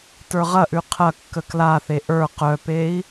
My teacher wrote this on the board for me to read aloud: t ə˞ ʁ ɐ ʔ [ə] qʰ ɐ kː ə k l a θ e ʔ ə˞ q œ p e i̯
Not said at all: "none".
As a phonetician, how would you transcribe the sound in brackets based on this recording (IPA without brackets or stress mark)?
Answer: ʉ